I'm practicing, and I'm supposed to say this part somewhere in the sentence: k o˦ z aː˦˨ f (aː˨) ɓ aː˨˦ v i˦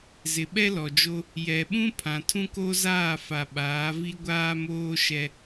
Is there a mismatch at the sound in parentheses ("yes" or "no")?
yes